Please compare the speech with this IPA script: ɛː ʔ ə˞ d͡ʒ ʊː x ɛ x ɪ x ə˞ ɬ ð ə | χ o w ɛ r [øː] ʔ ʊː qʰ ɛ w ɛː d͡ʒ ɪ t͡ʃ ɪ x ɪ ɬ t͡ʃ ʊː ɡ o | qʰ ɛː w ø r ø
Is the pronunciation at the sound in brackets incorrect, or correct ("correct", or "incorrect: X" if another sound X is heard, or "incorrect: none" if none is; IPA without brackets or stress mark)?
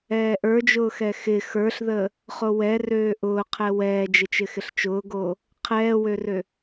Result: correct